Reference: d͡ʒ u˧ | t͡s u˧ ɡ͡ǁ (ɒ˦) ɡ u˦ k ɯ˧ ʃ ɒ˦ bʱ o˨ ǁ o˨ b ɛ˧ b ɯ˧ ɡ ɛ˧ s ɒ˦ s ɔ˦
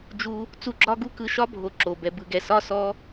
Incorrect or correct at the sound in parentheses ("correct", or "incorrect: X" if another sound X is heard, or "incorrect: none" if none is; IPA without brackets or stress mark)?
correct